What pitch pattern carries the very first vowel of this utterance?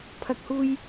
low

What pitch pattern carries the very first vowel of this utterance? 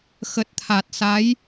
low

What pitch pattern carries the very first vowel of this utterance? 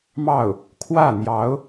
falling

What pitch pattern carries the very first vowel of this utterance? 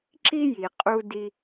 high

